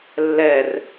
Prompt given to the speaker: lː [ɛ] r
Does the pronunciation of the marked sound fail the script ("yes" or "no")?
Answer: no